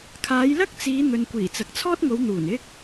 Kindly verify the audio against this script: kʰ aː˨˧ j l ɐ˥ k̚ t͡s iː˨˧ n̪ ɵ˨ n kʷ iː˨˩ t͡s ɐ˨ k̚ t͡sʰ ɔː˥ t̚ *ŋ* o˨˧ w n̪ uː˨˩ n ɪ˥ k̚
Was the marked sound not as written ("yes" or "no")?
no